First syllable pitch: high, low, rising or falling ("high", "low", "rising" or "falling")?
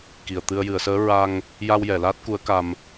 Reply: low